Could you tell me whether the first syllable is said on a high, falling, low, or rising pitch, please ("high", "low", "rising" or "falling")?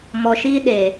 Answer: low